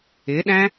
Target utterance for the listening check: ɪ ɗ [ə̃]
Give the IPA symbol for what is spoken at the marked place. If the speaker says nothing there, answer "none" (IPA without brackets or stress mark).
æ̃